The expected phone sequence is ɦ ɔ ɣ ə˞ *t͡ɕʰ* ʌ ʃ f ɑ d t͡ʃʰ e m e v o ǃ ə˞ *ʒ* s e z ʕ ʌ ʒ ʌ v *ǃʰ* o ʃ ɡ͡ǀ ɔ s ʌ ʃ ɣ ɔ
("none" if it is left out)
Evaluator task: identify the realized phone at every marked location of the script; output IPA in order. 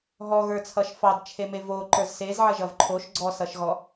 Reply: t͡sʰ, z, ǃʰ

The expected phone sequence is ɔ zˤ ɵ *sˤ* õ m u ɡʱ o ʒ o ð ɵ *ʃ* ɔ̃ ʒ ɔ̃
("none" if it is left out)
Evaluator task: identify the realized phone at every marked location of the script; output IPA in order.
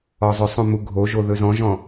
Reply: sˤ, z

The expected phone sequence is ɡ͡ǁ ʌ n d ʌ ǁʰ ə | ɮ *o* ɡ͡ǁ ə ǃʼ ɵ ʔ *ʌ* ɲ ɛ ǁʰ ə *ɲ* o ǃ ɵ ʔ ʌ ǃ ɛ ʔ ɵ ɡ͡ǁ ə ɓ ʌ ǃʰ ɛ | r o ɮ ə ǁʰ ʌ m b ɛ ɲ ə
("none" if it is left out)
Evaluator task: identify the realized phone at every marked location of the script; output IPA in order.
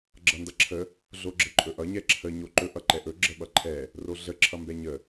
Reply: o, ʌ, ɲ

